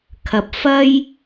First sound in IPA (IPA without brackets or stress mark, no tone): kʰ